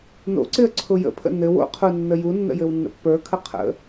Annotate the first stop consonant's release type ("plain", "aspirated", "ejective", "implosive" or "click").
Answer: click